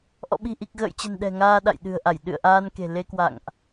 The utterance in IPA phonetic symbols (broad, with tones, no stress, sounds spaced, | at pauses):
ʔ ɔ̰˧˨ ɓ i̤˨˩ ʔ i˨˩ k̚ ɣ ə̰ː˧˨ j t͡ɕ ə̤˨˩ n ɗ ɛ̤˨˩ ŋ aː˧ ɗ a̰˧˨ j ɗ ɨ̤˨˩ ə̯ ʔ a˧˩ j ɗ ɨ̰˧˨ ə̯ ʔ aː˧ n k e̤˨˩ l e˧ k w a̰˧˨ ŋ ʔ